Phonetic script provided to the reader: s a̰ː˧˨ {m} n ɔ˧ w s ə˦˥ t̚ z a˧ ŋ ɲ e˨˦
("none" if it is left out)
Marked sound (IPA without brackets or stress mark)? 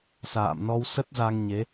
m